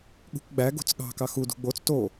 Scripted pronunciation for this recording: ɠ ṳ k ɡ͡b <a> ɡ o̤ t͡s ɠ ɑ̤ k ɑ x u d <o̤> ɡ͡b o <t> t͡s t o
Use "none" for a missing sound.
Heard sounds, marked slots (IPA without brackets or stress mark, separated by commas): æ, ṳ, none